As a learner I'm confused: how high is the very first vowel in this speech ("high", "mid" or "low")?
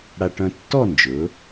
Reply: low